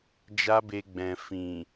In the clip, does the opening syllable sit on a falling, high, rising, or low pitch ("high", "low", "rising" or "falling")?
high